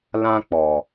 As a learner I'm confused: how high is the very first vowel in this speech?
low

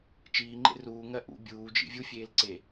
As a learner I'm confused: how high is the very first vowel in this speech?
high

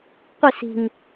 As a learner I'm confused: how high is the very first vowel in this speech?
high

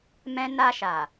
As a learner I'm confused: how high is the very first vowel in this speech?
mid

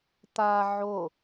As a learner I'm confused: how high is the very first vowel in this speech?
low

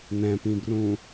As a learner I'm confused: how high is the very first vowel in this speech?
mid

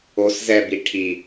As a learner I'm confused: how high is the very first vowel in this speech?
mid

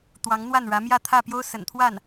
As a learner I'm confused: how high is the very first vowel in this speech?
low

